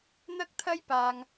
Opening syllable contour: high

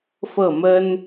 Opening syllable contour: falling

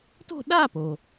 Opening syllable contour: falling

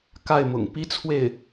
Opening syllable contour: falling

